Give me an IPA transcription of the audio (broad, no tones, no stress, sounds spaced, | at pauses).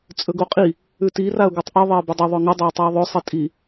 t͡sʼ ɵ ɡ o qʼ i | ʉ t i r a ʊ̯ ɡ u tˤ ʔ ɨ ðˤ e ə̯ b ɵ dˤ ɵ ðˤ ɵ ŋ ɨ dˤ o ɪ̯ tˤ i ə̯ ðˤ ɵ sˤ e tʼ i